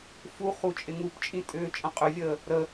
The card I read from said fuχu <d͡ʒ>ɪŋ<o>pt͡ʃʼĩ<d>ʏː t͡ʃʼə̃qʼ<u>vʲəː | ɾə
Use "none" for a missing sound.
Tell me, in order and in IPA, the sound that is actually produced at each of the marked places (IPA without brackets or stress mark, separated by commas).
t͡ʃʼ, u, tʼ, ʏ